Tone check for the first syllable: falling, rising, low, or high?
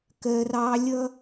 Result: high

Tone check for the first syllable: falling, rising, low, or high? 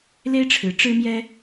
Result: high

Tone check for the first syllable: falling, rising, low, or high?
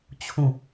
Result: falling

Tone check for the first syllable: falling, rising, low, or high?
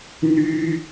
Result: high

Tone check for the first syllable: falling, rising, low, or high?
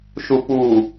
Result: low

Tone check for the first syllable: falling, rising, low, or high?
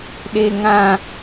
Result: high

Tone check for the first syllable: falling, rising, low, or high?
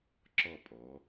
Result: falling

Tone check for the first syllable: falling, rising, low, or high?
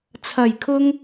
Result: low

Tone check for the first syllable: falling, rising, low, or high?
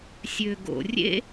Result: low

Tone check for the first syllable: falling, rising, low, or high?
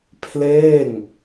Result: falling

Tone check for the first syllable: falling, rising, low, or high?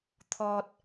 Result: high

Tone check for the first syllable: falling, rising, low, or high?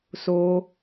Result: high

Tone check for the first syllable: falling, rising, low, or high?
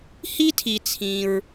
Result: high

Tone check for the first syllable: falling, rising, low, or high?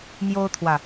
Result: high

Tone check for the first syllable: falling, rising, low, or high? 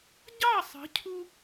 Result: falling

